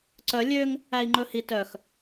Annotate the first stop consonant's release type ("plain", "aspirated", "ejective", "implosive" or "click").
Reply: click